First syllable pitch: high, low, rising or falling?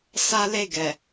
high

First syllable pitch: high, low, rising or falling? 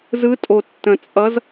rising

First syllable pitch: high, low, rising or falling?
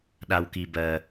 low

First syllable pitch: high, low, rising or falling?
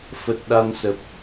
low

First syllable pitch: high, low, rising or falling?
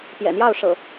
low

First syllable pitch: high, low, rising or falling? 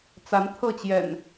rising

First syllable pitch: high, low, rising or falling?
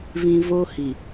low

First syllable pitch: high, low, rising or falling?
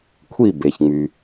falling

